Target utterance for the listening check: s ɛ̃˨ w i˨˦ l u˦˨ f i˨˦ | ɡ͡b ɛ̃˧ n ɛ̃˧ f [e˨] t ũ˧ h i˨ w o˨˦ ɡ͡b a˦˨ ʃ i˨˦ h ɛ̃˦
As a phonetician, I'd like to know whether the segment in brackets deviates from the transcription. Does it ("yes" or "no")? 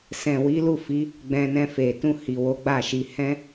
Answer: no